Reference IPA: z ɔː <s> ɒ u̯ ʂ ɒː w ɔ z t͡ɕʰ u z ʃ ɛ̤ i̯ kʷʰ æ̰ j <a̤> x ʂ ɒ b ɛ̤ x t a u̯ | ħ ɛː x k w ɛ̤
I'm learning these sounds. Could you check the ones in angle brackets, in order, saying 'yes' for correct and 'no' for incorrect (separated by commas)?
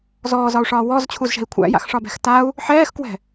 no, no